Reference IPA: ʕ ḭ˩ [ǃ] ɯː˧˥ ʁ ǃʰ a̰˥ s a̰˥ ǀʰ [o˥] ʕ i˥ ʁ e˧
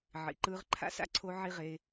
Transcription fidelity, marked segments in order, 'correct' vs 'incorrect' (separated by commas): correct, incorrect